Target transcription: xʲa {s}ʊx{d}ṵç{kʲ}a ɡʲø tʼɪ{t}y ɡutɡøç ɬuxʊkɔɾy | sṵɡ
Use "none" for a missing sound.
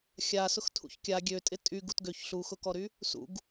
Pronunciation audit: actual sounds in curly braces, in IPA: s, tʰ, kʲ, tʼ

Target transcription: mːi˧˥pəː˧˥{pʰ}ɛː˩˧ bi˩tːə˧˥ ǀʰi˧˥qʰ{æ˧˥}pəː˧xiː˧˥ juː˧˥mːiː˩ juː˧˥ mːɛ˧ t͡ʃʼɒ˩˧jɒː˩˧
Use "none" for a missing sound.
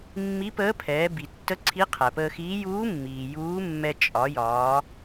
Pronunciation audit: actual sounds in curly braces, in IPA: pʰ, æ˩

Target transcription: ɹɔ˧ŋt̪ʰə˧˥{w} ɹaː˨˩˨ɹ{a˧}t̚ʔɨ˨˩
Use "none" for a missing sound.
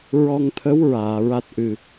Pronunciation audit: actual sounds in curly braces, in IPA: w, a˦˥

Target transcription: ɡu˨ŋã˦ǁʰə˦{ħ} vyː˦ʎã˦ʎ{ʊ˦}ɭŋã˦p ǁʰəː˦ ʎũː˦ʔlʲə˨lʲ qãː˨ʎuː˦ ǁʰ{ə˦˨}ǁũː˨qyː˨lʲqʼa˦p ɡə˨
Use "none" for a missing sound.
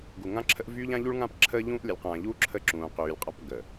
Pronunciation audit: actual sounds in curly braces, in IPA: ʔ, u˦, ə˦˨

